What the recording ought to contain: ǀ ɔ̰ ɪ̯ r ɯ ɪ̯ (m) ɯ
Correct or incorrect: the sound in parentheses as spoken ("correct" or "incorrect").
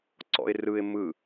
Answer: correct